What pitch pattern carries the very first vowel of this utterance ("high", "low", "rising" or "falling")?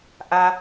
high